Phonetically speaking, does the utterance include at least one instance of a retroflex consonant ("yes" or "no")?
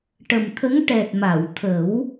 yes